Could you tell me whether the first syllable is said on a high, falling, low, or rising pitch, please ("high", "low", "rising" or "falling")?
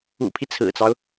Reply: low